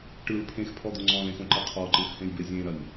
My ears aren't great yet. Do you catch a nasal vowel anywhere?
yes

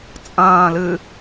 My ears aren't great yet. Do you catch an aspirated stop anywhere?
no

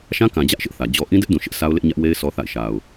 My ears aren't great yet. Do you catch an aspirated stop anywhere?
no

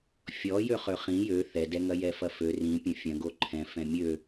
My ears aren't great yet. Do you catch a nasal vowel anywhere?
yes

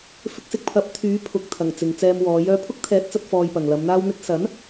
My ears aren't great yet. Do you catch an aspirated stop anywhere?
yes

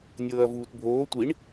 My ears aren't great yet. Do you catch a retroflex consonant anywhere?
yes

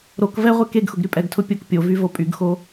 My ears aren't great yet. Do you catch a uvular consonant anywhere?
yes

